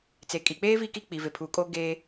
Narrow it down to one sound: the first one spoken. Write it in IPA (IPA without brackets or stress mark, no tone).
t͡s